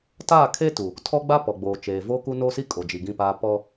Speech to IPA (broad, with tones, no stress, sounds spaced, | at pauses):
t aː˦˨ kʰ e˦ t u˨ | tʰ ɔ˦ ɡ͡b a˦ p ɔ˨ ɡ͡b oː˨ t͡ʃ eː˨ v o˦ k u˦ n o˦ s i˦ kʼ o˨ d͡ʒ i˨ ɡ ĩ˦˨ p aː˦ p ɔ˦